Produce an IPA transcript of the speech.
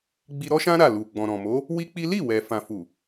ɡ͡b i˧ ɾ ɔ˦ ʃ ã˦ ɾ a˦˨ l u˨ ɡ͡b ɔ̃˨ ɾ ɔ̃˨ m o˨˦ | w i˦ k͡p i˦ l i˦˨ w ɛ˨ f ã˨ f u˨

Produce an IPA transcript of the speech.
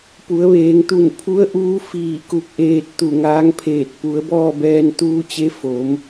p u˩˧ ə̯ ʋ eː˩˧ ŋ t̪ u˧˩ n pʰ u˧˥ ə̯ ʔ uː˧˥ f iː˧˩ k u˧˩ k̚ ʔ eː˧ t̚ t̪ u˧˩ ŋ aː˧˥ ŋ pʰ eː˧˩ t̚ p u˩˧ ə̯ b ɔː˥˨ b ɛː˧ n t̪ uː˧ t͡ɕ e˧˥ f o˩˧ m

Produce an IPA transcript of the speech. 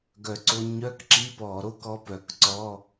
ɡ œ˨˩ ǀ o˧ ɲ œ˧˥˧ k ǁ i˧˥˧ p ɔ˧˩˧ ɾ o˥˧ k ɔ˧˥˧ p œ˧˩˧ k ǀ ɔ˧˥˧

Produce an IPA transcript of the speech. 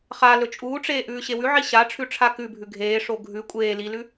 χ a l ɵ t͡ʃʼ uː ʈ͡ʂ eː ʔ ʉː ɕ e w ʉ ʕ i ɕ a ʈ͡ʂʰ ʉ ʈ͡ʂʰ a k ʉ bʱ ʉ ɡʱ eː ʂ o ɡʱ ʉ kʷʼ eː l i l ʉ

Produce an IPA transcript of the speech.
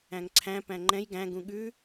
æ̃ ŋ ǀʰ æ̃ p æ̃ ŋ͡ǃ ɛ̃ j ɡ æ̃ ɡ ũ ɠ ʉ

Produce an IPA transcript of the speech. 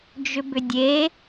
d͡ʒ ʏ b ʏ dʲ e

